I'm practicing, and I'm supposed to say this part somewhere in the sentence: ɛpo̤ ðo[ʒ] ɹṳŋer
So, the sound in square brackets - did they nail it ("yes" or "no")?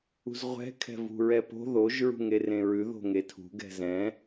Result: yes